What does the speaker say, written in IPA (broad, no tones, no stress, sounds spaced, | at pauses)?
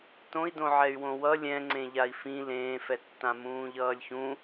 t õ i̯ d õ ʕ ɛ y̯ w õ w ʌ lʲ ɛ̃ ŋ͡ǀ ẽ ʎ a i̯ f ĩ l ẽː f ɛ tː ã m ũː ʎ ʌː lʲ ç ũ